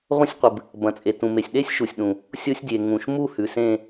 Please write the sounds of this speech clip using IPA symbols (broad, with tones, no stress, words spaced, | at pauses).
ʁʷɐ̃˦˥sʲqʷɨ˩b | bɐ̃˩t͡sʼe˩ tũ˩me˩sʲ ɗe˦˥sʲʃu˩sʲɗũ˩ | sʲo˦˥sʲdʲe˩ ŋũ˩ʃmu˥˨ hʉ˩sẽ˥˨